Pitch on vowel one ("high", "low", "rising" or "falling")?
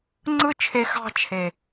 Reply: high